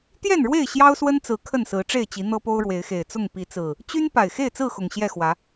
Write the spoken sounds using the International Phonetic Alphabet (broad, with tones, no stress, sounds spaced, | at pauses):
t̪ j ɛ˥˨ n ɻ w e˥˨ ɪ̯ ɕ j ɑ˦ ʊ̯ s w ə˦ n t͡s ɹ̩˨˦ kʰ ə˥˨ n s ɹ̩˨˦ ʈ͡ʂ e˥˨ ɪ̯ t͡ɕ i˨˦ n̪ ɤ˦ p o˦ ʊ̯ ɻ w e˨˦ ɪ̯ x e˨˩ ɪ̯ t͡s ʊ˥˨ ŋ p i˨˦ t͡s ɹ̩˨˩ | t͡ɕ y˦ n p a˨˩ ɪ̯ x e˥˨ ɪ̯ t͡s ɹ̩˥˨ x ʊ˨˩ ŋ ɕ j ɛ˥˨ x w ä˨˦